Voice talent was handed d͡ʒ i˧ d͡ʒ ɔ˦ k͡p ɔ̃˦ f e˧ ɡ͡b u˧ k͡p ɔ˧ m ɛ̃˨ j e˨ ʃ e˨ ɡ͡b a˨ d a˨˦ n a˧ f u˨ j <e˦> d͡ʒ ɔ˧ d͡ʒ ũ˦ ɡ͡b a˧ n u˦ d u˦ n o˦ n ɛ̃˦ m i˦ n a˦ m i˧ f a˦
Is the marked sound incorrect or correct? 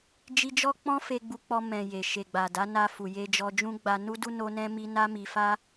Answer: incorrect